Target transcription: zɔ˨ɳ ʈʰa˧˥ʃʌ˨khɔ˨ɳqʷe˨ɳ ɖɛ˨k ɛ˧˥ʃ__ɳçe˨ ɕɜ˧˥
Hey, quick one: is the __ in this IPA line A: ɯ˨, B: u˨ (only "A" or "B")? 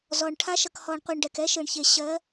A